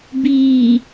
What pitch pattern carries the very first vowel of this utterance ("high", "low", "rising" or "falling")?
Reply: low